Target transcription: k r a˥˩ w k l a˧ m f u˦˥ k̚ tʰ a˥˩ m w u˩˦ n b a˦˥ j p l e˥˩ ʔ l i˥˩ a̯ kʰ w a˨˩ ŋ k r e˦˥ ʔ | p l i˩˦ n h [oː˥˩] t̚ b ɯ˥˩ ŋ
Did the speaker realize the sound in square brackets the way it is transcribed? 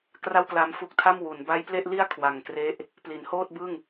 yes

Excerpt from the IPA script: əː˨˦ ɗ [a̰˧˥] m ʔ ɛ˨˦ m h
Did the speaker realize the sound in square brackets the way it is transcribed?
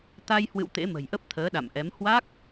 no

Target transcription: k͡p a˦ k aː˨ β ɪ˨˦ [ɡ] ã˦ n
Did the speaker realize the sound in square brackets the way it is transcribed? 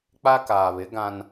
yes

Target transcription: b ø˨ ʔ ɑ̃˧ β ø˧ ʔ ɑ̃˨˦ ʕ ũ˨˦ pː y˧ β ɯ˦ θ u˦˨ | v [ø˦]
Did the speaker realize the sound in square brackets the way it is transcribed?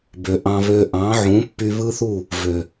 no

